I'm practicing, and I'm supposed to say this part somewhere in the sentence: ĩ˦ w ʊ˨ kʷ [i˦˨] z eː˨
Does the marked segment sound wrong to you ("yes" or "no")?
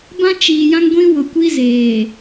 yes